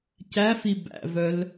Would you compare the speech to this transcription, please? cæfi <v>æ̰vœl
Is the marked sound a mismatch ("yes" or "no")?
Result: yes